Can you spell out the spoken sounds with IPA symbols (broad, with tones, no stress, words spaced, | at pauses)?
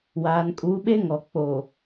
waː˨nkʼu˨˦ɓe˦ ŋɔ˨ k͡po˨